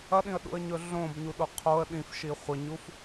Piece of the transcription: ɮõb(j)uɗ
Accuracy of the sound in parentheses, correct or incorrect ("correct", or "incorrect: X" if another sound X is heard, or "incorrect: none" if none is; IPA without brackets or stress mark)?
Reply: incorrect: ɲ